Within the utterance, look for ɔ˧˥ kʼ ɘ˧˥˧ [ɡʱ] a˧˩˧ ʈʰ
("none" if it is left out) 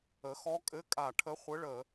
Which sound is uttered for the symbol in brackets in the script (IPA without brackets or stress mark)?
kʼ